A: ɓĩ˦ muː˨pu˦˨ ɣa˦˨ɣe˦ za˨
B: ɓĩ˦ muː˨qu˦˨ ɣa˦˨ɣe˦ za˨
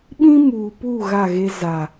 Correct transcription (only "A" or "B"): A